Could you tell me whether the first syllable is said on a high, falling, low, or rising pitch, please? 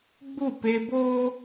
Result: falling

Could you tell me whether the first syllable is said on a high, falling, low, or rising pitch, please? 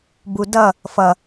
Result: low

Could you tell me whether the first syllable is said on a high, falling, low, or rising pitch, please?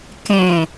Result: low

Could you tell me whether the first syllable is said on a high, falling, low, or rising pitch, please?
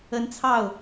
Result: rising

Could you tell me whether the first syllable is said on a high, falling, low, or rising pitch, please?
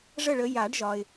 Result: falling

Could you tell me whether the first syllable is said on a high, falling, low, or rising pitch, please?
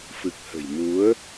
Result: low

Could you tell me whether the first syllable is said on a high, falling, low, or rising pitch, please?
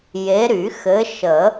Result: rising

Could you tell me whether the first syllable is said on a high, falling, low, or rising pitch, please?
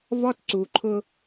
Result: high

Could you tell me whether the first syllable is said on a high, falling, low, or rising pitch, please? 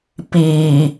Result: low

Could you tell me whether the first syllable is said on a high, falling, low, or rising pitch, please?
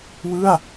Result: falling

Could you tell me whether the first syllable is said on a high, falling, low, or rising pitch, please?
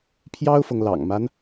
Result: high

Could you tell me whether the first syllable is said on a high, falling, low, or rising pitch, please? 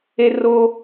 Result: high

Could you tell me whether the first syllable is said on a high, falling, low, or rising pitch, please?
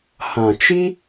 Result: low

